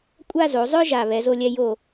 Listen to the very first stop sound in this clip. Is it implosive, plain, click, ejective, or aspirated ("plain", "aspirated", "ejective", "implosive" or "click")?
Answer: ejective